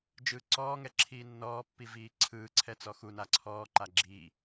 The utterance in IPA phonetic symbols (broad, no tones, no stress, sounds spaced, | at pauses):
d͡ʒ ɯː ǀ ɔː ŋ ɛ ǁʰ iː nː ɔː pː i v iː ǀʰ ɯː ǀʰ ɛ t͡s ɔ x u n a ǀʰ ɔː ǃ a ɡ͡ǁ i